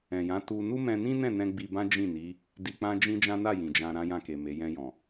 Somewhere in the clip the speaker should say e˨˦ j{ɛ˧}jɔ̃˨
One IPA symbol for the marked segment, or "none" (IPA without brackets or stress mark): ɛ̃˧